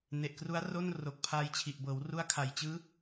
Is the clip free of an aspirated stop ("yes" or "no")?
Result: no